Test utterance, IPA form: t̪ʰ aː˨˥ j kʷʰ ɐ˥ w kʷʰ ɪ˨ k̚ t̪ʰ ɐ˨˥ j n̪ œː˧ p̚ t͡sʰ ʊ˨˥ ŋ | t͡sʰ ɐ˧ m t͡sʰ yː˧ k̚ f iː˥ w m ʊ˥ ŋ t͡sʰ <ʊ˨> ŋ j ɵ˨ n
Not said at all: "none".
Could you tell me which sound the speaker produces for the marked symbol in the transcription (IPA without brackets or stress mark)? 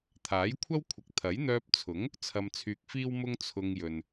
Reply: ʊ˧